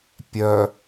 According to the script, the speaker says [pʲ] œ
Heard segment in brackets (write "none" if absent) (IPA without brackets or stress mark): pʲ